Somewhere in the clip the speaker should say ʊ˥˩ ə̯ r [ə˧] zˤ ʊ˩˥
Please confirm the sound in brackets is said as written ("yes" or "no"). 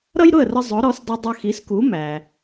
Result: yes